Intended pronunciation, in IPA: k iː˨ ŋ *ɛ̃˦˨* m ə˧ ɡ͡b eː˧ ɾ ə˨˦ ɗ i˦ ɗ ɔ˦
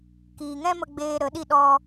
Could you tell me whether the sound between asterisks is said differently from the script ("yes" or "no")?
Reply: yes